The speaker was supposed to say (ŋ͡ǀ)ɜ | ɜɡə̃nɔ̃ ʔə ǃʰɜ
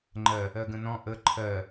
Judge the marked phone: incorrect: ŋ͡ǃ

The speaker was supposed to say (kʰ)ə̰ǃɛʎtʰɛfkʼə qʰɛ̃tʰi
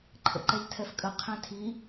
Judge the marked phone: incorrect: ǃʰ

